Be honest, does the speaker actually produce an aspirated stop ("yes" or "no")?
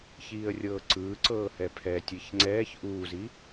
yes